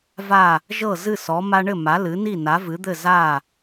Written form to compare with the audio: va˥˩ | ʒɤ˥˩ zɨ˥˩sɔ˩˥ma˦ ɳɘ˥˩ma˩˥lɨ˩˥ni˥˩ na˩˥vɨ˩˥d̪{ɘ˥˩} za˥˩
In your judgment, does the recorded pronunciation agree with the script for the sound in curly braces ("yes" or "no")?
yes